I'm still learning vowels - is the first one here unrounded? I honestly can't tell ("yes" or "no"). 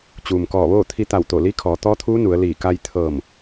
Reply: no